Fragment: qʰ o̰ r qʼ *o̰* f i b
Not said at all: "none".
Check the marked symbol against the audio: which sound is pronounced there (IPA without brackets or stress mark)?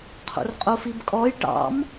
o